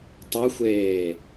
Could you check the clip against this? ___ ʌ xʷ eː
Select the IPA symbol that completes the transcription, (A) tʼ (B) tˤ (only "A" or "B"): B